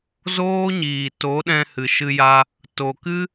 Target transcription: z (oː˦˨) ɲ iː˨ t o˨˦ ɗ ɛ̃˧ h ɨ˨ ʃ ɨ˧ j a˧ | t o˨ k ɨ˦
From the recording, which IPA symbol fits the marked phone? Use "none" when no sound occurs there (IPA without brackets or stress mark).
oː˦